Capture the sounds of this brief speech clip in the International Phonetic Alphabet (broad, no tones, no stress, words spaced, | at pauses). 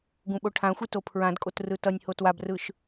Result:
ɡũɓoʈʰãxʷi topʰɹãdkʼot rɯtʌnʲho twabrɯʃ